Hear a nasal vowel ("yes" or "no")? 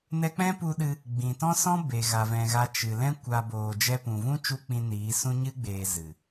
yes